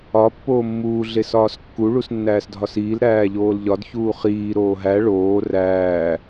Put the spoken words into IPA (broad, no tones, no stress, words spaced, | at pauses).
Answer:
ɒ pːoːmːuː ɮesɒːskːu ɭusnːæːsdʱɒsiːl ɾæːʎoːlʎɒd çuːχiː ɾoːɦæ ɭoː ræː